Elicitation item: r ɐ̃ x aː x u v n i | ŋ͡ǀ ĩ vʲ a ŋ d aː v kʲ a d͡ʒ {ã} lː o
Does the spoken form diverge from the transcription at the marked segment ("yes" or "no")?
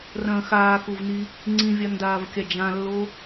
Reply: no